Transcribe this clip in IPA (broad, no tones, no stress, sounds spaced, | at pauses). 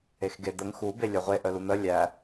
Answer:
e x ɡ e d̪ ə ŋ x u b e lʲ œ ʁʷ e ʔ œ l u n̪ ə lʲ æ